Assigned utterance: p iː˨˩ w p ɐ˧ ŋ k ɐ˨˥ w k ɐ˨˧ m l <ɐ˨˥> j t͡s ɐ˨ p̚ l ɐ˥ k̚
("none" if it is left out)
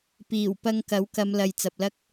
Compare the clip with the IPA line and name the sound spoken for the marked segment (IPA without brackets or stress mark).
ɐ˨